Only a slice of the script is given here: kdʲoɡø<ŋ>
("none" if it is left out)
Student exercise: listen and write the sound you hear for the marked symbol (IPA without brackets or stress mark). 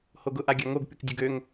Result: ŋ